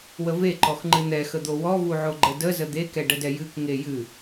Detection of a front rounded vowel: absent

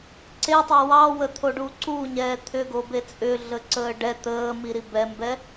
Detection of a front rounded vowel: present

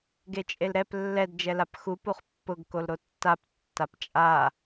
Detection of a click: absent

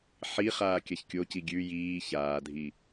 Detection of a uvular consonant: present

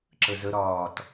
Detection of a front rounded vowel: absent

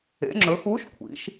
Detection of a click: present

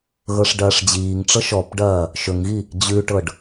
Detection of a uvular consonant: absent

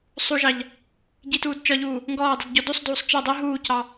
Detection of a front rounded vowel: absent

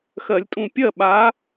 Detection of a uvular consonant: absent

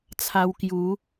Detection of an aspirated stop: present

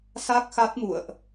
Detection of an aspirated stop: absent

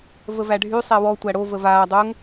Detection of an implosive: absent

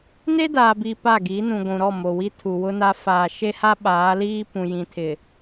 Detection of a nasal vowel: present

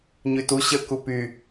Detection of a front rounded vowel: present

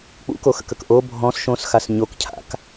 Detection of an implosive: absent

